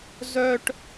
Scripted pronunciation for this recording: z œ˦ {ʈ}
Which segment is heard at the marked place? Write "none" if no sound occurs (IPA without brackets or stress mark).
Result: ʈ